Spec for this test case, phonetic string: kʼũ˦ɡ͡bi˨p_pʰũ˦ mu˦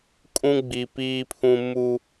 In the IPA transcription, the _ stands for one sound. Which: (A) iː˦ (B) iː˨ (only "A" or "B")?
A